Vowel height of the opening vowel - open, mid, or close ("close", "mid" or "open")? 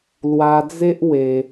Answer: open